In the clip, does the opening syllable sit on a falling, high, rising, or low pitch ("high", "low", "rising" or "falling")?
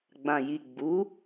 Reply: low